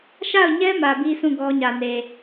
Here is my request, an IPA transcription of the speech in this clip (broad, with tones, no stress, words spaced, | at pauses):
ʃa˦˨ʊ̯ɲɛ˦ mä˨bi˦sũ˦˨ ɡɔ˦ɲä˨ne˨